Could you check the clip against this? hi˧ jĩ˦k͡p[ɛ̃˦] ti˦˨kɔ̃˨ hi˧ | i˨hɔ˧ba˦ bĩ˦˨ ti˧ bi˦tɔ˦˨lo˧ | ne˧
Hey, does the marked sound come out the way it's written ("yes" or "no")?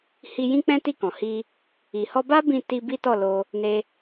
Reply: yes